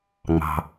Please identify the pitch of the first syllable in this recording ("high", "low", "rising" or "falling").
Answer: low